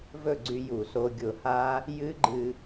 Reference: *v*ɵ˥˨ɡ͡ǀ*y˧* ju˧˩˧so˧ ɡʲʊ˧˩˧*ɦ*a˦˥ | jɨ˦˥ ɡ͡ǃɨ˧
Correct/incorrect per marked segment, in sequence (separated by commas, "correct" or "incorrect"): correct, correct, incorrect